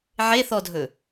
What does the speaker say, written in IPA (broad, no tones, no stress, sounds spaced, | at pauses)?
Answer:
ʕ e θ ɔ dʱ ɵ